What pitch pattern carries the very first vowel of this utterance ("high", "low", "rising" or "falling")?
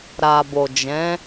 low